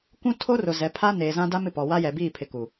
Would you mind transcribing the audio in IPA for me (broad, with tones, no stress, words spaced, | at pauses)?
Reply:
kʷũ˦ tʰo˦rʊ˨zɛ˨˦ pʰa˦neː˨zã˦da˦m ɪ˨pɔ˨wa˦ jɛ˨biː˦˨pʰɪ˨ ku˨